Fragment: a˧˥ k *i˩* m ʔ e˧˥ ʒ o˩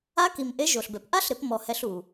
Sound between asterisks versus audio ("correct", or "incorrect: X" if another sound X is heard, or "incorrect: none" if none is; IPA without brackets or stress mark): correct